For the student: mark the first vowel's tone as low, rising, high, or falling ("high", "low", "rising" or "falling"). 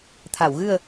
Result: low